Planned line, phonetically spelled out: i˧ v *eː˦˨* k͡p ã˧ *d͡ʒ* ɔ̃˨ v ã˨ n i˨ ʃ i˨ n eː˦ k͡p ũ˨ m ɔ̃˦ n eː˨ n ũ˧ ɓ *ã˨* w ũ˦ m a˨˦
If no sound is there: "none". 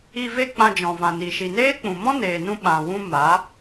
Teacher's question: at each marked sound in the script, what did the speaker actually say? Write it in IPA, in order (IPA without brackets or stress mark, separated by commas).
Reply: e˦˨, d͡ʒ, ã˨